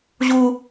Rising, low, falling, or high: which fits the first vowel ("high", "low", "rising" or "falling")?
high